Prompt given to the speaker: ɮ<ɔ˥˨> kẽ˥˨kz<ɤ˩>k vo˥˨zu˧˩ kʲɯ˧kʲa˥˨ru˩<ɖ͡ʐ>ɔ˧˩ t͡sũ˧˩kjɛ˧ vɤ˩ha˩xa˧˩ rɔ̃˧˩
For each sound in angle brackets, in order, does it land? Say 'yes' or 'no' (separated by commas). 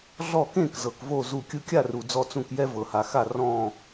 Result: yes, yes, no